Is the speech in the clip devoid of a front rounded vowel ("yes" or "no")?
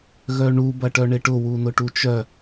no